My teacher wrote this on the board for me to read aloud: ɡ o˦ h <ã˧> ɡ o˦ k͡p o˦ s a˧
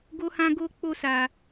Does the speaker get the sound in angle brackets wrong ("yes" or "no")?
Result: yes